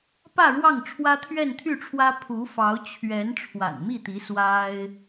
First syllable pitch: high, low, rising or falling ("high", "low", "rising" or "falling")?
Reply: falling